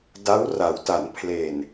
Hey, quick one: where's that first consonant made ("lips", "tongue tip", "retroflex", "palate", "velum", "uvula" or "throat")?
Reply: tongue tip